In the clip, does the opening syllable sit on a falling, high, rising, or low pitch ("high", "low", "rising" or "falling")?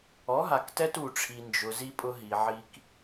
rising